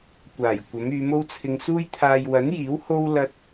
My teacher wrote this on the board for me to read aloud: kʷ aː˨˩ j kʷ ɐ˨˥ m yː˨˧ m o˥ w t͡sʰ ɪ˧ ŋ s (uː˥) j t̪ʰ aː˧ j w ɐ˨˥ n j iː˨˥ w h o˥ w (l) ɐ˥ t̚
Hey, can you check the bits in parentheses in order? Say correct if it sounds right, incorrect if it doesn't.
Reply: correct, correct

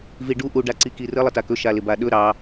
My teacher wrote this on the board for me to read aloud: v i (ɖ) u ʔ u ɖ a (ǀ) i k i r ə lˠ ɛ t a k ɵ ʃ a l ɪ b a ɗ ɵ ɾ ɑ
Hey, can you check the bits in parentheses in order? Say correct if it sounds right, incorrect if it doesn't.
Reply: correct, correct

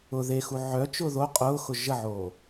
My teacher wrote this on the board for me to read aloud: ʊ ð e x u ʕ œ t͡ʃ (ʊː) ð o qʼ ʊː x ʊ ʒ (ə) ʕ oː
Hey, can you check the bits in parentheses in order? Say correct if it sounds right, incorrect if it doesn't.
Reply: correct, correct

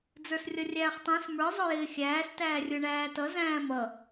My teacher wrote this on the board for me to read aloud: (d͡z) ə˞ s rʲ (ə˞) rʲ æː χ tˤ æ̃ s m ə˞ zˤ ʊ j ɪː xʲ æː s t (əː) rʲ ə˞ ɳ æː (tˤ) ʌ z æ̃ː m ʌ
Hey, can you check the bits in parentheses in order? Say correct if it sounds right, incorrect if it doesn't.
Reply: correct, incorrect, incorrect, incorrect

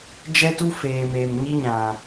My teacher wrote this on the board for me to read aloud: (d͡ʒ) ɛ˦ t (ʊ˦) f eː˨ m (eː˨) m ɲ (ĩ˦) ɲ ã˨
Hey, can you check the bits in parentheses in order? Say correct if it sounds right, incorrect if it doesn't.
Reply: correct, incorrect, correct, incorrect

